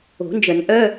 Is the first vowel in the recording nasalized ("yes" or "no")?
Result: no